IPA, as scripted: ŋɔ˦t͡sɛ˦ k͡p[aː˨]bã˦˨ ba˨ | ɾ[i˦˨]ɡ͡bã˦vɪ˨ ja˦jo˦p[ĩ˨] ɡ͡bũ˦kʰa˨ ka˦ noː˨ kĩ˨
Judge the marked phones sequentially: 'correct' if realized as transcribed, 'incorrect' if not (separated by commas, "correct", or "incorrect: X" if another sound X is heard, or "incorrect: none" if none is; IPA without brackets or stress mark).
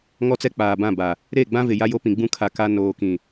correct, incorrect: e˦˨, correct